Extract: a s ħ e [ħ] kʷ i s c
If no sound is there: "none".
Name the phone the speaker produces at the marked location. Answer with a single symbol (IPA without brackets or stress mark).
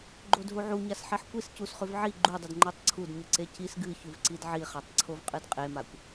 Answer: ħ